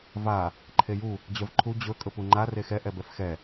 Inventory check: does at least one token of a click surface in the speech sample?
yes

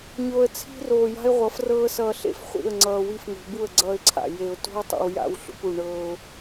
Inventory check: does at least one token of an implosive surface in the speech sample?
no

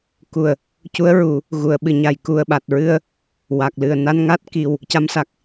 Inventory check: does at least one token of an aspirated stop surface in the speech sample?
no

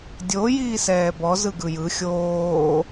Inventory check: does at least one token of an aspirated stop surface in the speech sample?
no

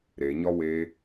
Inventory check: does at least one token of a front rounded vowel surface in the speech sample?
no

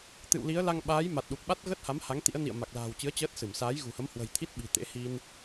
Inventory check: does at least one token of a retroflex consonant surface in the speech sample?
no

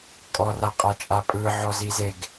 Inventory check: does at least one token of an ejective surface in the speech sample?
yes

